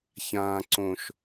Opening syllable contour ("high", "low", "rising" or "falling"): low